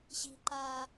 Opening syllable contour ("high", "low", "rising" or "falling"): high